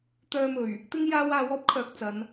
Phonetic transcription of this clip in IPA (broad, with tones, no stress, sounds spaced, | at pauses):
t̪ œː˧ m ɵ˨˩ ɥ | t̪ ɪ˥ ŋ j aː˧ w aː˧ w ɔː˥ p̚ kʰ œː˨ k̚ t͡s ɐ˨˧ n